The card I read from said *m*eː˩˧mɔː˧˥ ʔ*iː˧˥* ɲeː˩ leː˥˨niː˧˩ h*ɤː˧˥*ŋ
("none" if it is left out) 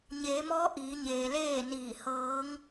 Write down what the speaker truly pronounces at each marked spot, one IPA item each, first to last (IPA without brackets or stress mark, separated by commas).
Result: ɲ, iː˩˧, ɤː˧˥